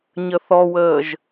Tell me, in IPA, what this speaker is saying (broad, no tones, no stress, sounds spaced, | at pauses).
ɲ ə θ ɔ w əː ʒ